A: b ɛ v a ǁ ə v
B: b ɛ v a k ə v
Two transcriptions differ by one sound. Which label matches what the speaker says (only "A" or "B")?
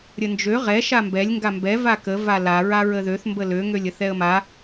B